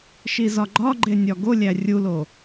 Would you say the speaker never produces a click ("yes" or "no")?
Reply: no